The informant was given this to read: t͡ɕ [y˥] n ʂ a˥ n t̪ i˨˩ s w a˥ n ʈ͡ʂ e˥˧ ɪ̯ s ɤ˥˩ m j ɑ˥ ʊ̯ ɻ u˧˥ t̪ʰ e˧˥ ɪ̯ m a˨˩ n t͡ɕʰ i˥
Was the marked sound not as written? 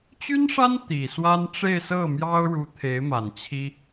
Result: no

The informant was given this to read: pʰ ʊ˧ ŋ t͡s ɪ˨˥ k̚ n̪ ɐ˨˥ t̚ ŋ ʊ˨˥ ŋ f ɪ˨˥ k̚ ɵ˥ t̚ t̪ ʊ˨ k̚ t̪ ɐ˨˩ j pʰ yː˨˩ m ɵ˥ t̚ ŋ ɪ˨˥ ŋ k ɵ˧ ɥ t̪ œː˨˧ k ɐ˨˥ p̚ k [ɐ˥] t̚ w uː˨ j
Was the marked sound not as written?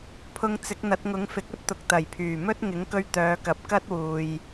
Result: no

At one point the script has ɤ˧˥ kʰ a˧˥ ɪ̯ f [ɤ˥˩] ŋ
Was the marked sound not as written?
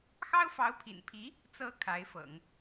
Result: yes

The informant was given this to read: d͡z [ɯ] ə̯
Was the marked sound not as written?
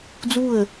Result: yes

